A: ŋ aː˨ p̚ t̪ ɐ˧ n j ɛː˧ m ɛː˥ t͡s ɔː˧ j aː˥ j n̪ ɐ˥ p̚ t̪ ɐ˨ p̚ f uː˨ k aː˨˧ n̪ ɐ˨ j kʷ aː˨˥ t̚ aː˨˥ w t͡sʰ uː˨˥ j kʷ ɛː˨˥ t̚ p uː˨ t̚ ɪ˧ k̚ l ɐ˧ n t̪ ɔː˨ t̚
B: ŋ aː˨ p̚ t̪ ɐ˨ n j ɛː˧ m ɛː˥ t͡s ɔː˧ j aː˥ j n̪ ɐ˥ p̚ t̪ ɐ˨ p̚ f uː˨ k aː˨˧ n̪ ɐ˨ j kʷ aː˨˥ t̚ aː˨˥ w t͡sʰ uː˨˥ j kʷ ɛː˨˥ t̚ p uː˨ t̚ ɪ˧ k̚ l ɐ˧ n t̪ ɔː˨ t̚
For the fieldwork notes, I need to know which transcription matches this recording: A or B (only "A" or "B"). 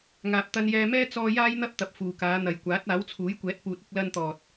A